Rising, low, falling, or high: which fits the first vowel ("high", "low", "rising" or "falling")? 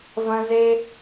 high